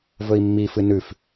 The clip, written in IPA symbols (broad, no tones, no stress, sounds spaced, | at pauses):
v ɵ i̯ mː i f ɨ n ʉ f